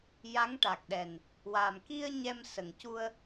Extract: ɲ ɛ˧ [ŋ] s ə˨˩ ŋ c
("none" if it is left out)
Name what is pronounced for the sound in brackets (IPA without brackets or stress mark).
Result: m